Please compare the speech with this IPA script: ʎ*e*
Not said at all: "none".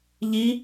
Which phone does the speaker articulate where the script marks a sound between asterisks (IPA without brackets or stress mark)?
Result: i